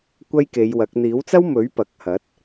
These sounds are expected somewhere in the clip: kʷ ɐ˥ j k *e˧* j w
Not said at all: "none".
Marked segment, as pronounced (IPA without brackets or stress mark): e˨˧